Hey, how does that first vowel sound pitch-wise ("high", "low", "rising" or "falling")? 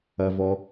low